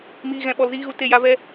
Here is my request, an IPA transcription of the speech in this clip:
m iː˧ ɣ ɛ̃˧ ɓ ɔ˧ l z iː˦ ɣ u˧ t e˦˨ j a˦ v ɛ˦

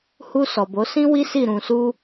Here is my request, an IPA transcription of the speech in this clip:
h u˧ s ɔ˨ b o˨˦ s ĩ˦ w i˦ s i˦˨ ɾ ũ˧ s u˦

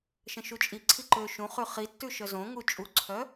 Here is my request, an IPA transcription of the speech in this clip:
ʃ ə̃ ʃ u t͡ʃʼ i ǀʰ i ǃ ø ʃ ũ χ ʉ χ i tː ʉ ʃ œ z õ ŋ u t͡ʃʼ u ǀʰ œ

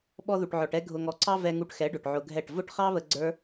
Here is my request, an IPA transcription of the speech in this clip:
ɓ ɔ˧ ð u˨ ʈ ʕ ɔ˨ ʈ ɛ˧ ɡʱ ʊ˨ ŋ ɔ˨ ǀ ɑ˧ v ɛ˧ ŋ u˧ ʈ x ɛ˨˦ ɖ ʊ˨ ʈ ʕ ʊ˧ ɡʱ ɛ˦˨ ʈ v ʊ˦ ʈ χ ɑ˦ β ə˧ ɡ͡ǀ ə˞˦

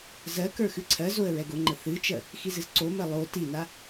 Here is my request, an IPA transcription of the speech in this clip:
z ɜ k ə˞ x ɨ ǀʰ ɜ z o ə̯ ɹ ɛ ɡ ʊ ŋ͡ǃ ə θ ɨ t͡ʃ ɜ | x i z ɨ z ǀ o m ɜ lˠ o t i n a

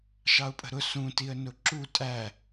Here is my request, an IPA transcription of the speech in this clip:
ʃ ɑ ʊ̯ pʼ ə̤ ɾ ʊ s ũ t i ə̯ n ʊ ǁ u tʼ æ

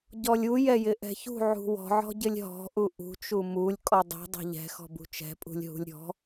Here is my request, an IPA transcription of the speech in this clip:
ɟ ɔ lʲ u j ɛ j ɪ ʔ ɛ̤ ç ṳ ʕ ṳ w ɔ̤ ʕ ɔ̤ ɟ ɪ lʲ ɦ ɔ̤ ʔ u ʔ ṳ t͡ʃ u m u lʲ kʼ ɔ dˤ ṳ dˤ ɛ̤ ʎ ɛ̤ x ɔ̤ b ṳ t͡ʃ ɛ̤ pʼ ṳ lʲ ɦ ṳ lʲ ɾʲ ɔ̤

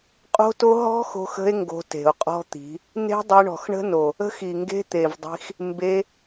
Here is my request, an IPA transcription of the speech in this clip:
qʼ o̤˦ t o˦ ɦ ɔ̤˦ x o̤˧ x ə̤˧ e̯ ŋ ɡ o̤˧ t e̤˨ o̯ qʼ ɔ̤˦ t̪ i̤˨˦ | n e̤˦ dˤ e˧ ɳ ɔ̤˨ x ɳ ə̤˦ n o˨ | ə̤˦ x i˨ ŋ ɡ e̤˦ t̪ e˨ v dˤ i̤˧ x | m b e˧

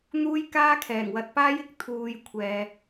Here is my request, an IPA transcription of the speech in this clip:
n̪ uː˥ j k aː˥ kʰ ɛː˨˩ ŋ w ɐ˧ t̚ p aː˥ j ɪ˨ k̚ t̪ʰ uː˨ j kʷʰ ɛː˨

